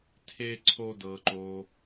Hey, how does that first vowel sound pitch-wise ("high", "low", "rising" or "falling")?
high